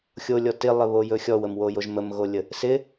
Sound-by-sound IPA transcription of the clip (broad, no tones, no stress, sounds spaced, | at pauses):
xʲ o lʲ ɔ t ɪ lˠ ɪ β o j ɵ xʲ ɔ w ə m w o j o ʒ m ə m ɣ o lʲ ə | s ɪ